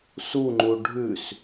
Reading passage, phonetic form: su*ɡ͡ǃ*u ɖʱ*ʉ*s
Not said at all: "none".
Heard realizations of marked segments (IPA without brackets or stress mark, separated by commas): ŋ͡ǃ, ʉ